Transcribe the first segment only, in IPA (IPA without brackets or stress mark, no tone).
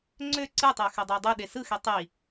ŋ͡ǀ